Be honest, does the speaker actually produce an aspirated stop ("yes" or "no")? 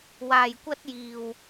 no